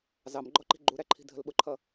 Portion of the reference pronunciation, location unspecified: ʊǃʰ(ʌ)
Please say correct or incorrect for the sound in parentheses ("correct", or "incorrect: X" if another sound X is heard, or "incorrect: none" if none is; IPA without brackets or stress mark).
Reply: correct